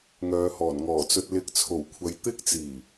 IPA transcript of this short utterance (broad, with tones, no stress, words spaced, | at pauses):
ŋœː˨˧hɔː˨˩nŋɔː˨˩t͡sɵ˧t̚ lɪ˧k̚t͡sʰo˨˩wkʷʰɐ˨˧j t̪ɪ˥k̚t͡siː˨˩